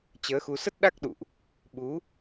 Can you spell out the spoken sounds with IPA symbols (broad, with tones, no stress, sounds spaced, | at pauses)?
t͡ɕ əː˨˦ x u˧ s ə˦˥ t̚ ɗ a˦˥ k̚ ɗ ṵ˧˨ ʔ | ɓ u˨˦